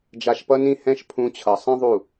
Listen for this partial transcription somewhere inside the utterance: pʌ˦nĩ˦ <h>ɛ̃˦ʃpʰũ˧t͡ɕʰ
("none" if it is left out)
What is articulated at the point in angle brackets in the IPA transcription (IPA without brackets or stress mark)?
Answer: h